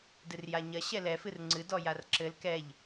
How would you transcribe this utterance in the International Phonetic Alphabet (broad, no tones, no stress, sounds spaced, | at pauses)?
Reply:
d ɨ r j a ɲ ɐ ɕ ɛ l ɛ f ɨ r ŋ͡ǀ ɨ d ɔ j a r ǁ ɘ l k ɛ ʎ